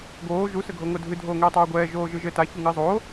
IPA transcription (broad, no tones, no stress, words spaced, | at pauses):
ɡoː ʒu sɘɡʱoŋodʱɨ dʱoːŋɛːtˤoːɡʷɛː ʒoːʒɨʒɘ ta çuŋɨːzˤoː